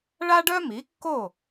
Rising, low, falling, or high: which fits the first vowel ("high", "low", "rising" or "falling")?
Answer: high